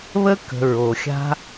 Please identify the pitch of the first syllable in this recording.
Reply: high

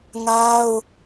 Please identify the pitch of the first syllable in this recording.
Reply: high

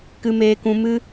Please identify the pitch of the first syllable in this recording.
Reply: high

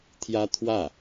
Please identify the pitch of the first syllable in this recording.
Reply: high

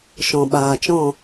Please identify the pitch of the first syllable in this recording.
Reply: low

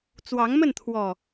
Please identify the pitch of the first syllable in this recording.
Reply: rising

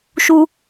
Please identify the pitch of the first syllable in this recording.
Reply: high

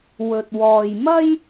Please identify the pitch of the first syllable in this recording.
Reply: low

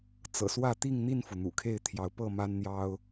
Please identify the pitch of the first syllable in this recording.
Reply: low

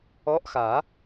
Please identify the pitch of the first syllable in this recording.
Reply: rising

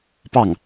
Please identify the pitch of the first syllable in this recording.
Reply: falling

